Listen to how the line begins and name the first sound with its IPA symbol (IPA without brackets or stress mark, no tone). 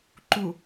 ǃ